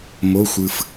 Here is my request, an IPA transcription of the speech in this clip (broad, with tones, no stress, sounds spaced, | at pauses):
m o˩˧˩ xʷ ɯ˩ f